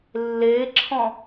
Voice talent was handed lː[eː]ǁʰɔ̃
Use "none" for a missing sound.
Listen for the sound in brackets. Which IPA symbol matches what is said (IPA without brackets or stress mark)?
eː